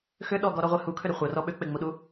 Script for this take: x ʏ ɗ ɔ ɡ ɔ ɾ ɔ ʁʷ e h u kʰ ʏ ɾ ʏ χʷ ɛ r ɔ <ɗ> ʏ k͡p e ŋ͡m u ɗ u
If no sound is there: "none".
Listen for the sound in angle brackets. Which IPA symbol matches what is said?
ɓ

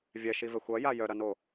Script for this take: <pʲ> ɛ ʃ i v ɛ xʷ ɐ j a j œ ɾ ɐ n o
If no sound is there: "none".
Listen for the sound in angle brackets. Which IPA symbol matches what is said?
vʲ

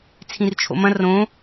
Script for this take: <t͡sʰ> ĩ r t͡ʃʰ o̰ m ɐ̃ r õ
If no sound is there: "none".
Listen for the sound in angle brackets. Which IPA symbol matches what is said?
t͡sʰ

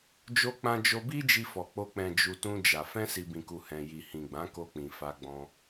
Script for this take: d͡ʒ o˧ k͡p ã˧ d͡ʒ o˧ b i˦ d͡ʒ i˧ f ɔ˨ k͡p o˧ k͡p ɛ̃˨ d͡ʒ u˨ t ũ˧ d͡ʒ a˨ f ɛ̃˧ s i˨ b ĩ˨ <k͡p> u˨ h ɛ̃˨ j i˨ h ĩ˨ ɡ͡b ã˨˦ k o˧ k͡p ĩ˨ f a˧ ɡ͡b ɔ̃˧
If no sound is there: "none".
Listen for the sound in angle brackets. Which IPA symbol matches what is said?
k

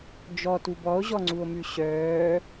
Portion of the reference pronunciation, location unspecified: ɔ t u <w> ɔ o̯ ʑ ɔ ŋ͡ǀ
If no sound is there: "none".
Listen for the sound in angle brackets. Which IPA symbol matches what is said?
b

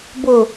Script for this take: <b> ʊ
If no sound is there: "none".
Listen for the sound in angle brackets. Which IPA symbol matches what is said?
b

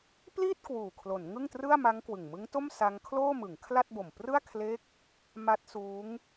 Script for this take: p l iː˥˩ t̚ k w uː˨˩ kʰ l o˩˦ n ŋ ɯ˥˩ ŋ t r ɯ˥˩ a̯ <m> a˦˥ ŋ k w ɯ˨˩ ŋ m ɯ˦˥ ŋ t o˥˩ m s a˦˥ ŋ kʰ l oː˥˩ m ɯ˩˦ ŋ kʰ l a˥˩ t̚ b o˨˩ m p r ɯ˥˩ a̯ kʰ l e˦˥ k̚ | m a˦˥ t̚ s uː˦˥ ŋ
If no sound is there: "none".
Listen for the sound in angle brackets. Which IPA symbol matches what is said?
m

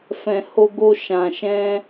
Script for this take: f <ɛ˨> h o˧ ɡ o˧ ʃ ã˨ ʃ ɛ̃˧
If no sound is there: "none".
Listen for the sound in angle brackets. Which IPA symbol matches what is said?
ɛ̃˨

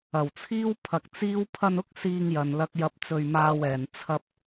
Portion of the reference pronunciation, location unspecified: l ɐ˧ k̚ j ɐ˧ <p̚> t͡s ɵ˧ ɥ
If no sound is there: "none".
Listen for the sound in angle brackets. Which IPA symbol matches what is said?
p̚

